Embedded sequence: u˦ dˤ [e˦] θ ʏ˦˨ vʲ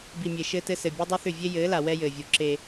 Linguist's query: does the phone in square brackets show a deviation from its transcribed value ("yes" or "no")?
no